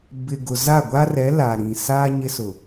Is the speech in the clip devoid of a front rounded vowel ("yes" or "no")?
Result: yes